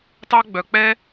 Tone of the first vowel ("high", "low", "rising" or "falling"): high